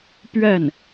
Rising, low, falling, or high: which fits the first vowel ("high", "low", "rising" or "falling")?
falling